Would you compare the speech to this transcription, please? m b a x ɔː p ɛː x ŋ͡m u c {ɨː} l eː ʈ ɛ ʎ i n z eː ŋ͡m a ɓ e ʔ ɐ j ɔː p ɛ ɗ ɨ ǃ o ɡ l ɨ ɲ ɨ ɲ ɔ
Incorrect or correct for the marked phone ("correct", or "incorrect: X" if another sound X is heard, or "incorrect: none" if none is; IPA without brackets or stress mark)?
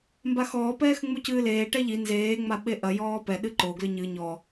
correct